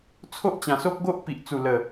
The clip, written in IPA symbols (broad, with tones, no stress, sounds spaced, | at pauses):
t͡sʰ o˦ ʔ t͡ɕ ã˨˩ s o˦ k̚ ɡ o˦ ʔ p i˨ ʔ t͡s u˨˩ l ə˨˩